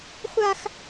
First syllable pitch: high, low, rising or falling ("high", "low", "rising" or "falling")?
high